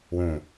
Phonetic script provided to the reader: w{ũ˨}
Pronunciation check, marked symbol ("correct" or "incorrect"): correct